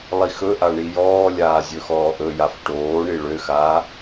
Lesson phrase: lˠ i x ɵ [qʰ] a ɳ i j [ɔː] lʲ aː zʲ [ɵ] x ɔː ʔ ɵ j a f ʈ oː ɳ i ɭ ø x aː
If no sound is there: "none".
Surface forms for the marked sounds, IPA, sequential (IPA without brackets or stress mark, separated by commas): ʔ, ɔː, ɵ